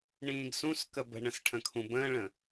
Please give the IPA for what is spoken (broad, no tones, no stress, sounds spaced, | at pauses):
ɳ ĩː ɡ s ũ s k ə b ə̤ ɳ ə̃ s ʈʰ ə̃ kʰ ũ b ə̃ː ɭ ə̃